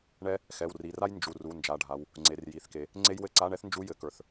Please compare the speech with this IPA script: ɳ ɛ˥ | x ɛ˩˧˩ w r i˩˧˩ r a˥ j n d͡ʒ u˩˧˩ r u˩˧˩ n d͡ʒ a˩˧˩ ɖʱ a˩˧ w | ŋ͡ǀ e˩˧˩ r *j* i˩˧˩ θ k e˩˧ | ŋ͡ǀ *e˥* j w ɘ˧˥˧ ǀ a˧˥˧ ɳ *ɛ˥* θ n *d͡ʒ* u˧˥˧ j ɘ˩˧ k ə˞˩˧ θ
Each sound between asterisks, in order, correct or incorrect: correct, correct, correct, correct

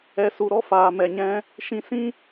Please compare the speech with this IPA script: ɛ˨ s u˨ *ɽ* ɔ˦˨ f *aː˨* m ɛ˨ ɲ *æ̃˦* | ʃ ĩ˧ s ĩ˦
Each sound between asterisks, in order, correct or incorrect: incorrect: ɾ, correct, incorrect: ɛ̃˦

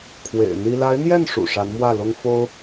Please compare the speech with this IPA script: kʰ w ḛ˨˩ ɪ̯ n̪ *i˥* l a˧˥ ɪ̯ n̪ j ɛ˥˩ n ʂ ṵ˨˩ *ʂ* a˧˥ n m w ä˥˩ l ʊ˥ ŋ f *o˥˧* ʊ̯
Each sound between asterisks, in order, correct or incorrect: correct, correct, incorrect: o˥

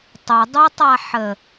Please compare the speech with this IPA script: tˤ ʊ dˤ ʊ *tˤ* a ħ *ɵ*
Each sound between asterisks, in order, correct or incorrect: correct, incorrect: ə

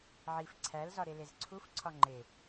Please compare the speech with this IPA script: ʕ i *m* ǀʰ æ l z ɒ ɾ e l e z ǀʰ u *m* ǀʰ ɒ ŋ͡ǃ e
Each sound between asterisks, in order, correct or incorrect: incorrect: f, incorrect: f

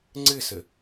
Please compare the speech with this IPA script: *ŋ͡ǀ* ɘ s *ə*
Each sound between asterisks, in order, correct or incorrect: correct, correct

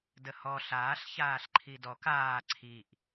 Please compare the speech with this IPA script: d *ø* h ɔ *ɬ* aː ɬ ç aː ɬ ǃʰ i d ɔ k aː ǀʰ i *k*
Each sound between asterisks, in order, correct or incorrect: incorrect: ə, correct, incorrect: ʔ

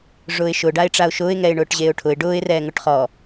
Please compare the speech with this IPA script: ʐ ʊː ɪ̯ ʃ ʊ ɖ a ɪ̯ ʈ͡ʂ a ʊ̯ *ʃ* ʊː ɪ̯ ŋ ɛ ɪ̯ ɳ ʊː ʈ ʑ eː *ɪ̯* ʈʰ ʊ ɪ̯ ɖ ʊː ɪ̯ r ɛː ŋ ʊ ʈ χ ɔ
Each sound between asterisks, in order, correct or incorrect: correct, incorrect: ʊ̯

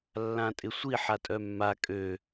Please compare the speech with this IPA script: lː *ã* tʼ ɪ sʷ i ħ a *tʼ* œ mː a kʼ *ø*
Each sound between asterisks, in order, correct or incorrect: correct, correct, correct

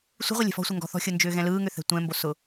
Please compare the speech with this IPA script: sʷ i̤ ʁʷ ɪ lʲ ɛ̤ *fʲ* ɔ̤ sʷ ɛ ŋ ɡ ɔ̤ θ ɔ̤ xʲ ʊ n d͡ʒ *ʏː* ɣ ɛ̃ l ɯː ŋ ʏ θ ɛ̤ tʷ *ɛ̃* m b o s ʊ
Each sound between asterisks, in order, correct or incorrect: incorrect: f, correct, correct

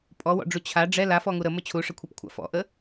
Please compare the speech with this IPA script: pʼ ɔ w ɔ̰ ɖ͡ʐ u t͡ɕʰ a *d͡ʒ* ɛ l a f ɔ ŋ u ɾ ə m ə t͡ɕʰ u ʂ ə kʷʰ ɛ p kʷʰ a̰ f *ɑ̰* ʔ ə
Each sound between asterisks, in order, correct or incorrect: incorrect: ɖ͡ʐ, incorrect: ɔ̰

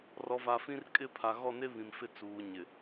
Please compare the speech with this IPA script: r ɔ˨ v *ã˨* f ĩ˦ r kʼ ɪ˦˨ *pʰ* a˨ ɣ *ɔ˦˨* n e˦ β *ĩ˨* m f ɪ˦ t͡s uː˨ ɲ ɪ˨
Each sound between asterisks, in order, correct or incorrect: incorrect: a˨, correct, correct, correct

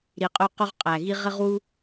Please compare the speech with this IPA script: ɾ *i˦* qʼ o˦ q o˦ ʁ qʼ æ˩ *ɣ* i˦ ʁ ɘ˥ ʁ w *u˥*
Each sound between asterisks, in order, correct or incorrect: incorrect: i˨, correct, correct

